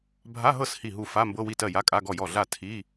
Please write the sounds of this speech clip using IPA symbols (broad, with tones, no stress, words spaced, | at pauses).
bʱa˧˥˧ɦɤ˥˩s hi˥˩ɦu˥˩ fa˧˥˧mbɤ˧˥˧wi˥˩tɜ˥˩ ja˧˥˧kʼa˧˥˧ɡɔ˥˩jɔ˥˩ ɮa˥˩ tʰi˧˥˧